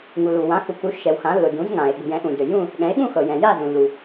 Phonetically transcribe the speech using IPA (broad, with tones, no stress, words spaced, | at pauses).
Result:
ŋu˩lu˩ wã˩˧xu˩ku˩˧ ʃɛ˩wxã˩˧lːʊ˩ dũ˩˧zŋã˩e̯ ɠṳ˩jɛ̃˩˧ʔũ˩dø˩ jũ˦˨ | ɠɛ̃˩˧e̯ɠũ˦˨xɤ˩jɛ̃˩ ja˦˨zũ˩lːu˩